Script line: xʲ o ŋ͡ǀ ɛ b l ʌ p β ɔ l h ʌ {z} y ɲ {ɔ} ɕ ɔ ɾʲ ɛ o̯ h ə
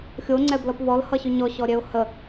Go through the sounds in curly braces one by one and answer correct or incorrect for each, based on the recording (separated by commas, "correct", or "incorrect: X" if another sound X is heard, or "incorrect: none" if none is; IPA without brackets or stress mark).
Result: incorrect: ɕ, correct